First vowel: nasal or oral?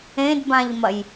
nasal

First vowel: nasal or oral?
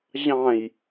nasal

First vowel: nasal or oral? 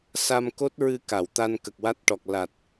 oral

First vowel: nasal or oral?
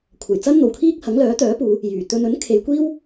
oral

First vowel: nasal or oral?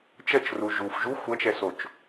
oral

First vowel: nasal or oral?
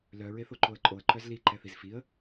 oral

